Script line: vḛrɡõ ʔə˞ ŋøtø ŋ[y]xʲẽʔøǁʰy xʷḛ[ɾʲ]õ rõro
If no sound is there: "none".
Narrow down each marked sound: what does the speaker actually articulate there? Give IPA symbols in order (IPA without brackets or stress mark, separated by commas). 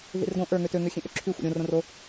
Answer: ø, ɾʲ